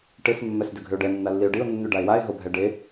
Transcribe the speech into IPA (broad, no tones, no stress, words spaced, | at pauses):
ʈes mːɛsdʏɡʱʏʊ̯ɖɛ nːalːiʊ̯ɖiʊ̯ nːʉɖaɪ̯waɪ̯ ɦobʱɛɖe